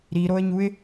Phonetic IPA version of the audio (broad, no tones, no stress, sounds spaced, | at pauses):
ɾ i ɾ o ə̯ ɲ u ɪ̯